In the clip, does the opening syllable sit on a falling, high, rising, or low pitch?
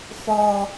low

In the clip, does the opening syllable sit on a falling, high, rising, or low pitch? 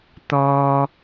low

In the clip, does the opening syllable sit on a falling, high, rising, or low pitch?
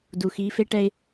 low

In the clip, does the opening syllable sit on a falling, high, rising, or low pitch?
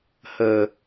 low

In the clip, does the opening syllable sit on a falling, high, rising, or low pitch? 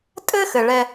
high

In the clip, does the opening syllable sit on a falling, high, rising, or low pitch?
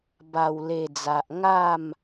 low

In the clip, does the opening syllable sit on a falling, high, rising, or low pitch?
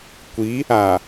rising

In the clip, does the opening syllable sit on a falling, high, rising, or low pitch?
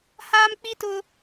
high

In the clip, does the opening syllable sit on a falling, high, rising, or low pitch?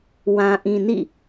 low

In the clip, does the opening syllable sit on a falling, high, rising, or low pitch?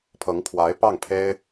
rising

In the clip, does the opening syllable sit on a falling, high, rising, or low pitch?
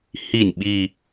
falling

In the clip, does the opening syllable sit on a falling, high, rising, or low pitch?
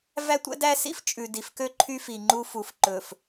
high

